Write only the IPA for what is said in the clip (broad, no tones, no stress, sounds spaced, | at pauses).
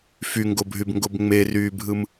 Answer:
f y ŋ ɡ o bʱ y b ŋ ɡ o b ŋ͡m e r yː bʱ ɯ m